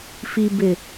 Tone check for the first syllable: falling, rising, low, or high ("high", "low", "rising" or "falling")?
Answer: low